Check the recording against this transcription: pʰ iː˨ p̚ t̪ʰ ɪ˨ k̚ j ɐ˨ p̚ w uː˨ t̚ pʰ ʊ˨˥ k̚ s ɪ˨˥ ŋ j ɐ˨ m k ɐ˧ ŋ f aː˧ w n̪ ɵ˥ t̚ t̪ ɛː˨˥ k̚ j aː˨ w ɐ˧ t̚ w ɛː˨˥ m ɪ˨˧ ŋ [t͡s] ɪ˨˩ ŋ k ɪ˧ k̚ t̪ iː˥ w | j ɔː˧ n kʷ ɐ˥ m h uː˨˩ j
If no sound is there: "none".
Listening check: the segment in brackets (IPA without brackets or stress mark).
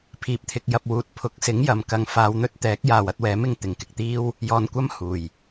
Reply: t̪